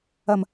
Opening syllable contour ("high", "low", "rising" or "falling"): low